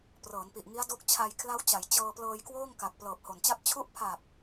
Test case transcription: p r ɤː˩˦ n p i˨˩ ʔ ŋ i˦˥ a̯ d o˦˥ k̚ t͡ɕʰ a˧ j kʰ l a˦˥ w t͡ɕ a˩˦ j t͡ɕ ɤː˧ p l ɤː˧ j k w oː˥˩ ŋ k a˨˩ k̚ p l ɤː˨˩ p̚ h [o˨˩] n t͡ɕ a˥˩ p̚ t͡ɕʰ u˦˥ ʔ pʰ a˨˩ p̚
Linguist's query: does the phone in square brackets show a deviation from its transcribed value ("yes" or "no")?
no